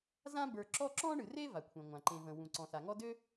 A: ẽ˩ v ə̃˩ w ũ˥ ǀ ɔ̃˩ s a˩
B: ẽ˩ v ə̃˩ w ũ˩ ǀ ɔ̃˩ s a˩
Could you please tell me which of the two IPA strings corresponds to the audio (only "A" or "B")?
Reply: B